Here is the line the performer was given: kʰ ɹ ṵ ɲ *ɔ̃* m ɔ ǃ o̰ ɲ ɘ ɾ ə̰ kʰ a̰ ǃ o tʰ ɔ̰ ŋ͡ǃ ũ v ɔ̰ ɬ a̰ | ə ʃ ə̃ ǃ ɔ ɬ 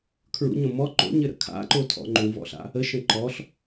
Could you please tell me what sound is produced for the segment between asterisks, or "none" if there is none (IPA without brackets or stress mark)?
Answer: õ